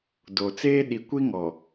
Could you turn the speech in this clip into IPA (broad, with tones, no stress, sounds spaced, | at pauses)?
d o˨ t͡s eː˦ ɗ i˨ kʷ i˦ ŋ ɔ˨